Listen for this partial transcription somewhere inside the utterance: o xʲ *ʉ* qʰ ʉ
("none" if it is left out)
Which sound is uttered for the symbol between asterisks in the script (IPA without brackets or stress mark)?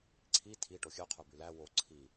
ʉ